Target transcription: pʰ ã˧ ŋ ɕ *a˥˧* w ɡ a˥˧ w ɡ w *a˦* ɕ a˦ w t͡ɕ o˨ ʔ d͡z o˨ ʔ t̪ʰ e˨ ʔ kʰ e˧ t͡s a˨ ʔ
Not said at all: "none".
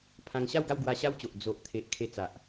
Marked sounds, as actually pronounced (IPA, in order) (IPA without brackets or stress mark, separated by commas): a˥˧, a˧